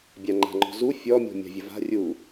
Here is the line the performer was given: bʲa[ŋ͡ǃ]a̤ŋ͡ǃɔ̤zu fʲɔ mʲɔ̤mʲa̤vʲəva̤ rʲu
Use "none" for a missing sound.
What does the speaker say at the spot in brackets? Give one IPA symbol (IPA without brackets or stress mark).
ŋ͡ǃ